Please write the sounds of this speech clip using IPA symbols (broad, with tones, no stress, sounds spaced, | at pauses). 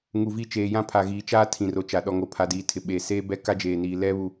ŋ u˨ v i˦˨ t͡ʃ eː˨ j ã˦ pʰ a˨ ɣ iː˨ t͡ʃ aː˦ tʰ ĩ˨ r o˨ t͡ʃ a˨ ɗ ɔ˨ ŋ o˨ pʰ a˨ d iː˨ tʰ ɪ˨ ɓ eː˨ s eː˦ b ɛ˦ k a˦ d͡ʒ eː˨ n iː˨ l ɛ˦ β u˨